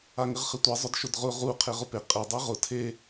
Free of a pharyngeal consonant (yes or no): yes